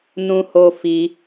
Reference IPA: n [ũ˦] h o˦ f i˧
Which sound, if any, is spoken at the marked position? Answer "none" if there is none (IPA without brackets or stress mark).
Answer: ũ˦